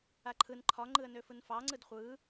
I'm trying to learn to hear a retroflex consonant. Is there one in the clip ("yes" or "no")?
no